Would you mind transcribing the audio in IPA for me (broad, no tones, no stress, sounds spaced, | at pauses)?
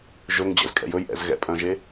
ʒ ɵ ŋ d͡ʑ ɛ̰ z kʼ ɛ̰ j ɵ j ʔ ɛ̰ z ɣ ɛ̰ pʼ œ̃ ʒ e